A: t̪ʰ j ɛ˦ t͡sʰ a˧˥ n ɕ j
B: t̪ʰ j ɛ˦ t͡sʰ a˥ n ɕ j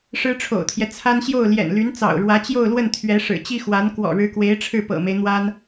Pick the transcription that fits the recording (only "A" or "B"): B